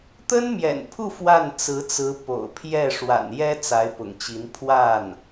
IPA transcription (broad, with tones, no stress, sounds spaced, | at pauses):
t̪ ə˥ n m j ɛ̰˨˩ n pʰ u˥˧ f w a˥˩ n t͡s ɹ̩˧˥ t͡s ɹ̩˧˥ p o̰˨˩ ʊ̯ pʰ j ɛ˥˩ ʂ w a̰˨˩ n j ɛ˥ t͡s a˧˥ ɪ̯ p ʊ̰˨˩ ŋ t͡ɕ i˧˥ n pʰ w a˥˩ n